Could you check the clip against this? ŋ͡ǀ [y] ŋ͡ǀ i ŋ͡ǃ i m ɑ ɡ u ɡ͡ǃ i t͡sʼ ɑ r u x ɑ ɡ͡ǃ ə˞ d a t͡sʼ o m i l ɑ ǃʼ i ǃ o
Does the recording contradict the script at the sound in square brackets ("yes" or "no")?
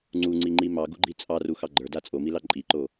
yes